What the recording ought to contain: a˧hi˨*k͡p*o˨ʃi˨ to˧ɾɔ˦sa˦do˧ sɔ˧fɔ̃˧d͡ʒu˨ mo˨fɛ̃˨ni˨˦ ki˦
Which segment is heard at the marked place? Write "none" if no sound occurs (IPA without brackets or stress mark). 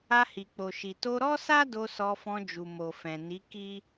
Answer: k͡p